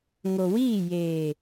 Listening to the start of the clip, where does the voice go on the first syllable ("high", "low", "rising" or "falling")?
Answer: low